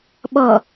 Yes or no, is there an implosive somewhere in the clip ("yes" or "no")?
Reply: yes